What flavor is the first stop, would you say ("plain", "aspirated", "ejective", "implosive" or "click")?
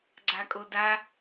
click